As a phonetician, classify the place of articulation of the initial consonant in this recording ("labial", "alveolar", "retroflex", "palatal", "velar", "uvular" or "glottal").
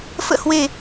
labial